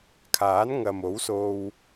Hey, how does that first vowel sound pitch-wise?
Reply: rising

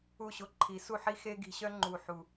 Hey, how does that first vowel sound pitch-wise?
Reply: falling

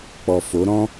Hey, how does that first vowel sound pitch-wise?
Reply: low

